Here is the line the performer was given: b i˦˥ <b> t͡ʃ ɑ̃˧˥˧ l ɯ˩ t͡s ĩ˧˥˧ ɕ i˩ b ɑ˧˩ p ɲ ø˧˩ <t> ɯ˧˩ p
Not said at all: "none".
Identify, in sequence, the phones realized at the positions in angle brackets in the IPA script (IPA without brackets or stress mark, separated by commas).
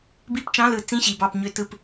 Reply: p, t